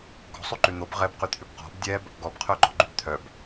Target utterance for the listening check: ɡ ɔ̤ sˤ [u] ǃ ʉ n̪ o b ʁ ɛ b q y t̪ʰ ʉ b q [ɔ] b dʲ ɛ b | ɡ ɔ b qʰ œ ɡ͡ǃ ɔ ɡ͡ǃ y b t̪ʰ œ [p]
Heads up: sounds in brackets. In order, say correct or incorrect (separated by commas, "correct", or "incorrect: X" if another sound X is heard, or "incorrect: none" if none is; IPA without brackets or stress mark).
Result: incorrect: ʉ, incorrect: ɔ̤, incorrect: b